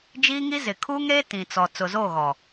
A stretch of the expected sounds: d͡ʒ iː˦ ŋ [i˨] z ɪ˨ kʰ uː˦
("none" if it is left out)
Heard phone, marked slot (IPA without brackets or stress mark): i˦